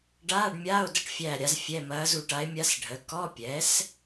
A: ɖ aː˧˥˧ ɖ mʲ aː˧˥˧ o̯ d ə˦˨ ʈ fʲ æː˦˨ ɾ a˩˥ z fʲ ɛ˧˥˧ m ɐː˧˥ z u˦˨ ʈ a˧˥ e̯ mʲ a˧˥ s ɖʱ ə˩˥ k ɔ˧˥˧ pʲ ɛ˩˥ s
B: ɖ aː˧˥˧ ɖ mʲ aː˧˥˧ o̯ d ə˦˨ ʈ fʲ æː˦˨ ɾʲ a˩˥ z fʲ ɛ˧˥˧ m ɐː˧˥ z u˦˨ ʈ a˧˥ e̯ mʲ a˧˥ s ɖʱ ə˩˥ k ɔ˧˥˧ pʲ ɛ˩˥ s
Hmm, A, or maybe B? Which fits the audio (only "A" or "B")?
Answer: B